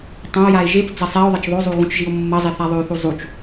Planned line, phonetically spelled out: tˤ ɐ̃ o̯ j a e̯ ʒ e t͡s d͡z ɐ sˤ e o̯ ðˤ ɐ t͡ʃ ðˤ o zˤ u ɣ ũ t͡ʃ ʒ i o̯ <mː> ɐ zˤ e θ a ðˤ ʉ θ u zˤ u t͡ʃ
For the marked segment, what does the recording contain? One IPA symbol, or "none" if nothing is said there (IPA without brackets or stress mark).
mː